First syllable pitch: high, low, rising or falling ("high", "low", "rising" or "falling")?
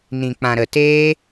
low